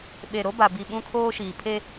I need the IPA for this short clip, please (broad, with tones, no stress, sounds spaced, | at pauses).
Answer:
ɓ e˨ ɾ o˦ b a˨ b i˨ ɓ ũ˦ kʰ oː˦ ʃ iː˨ pʰ e˦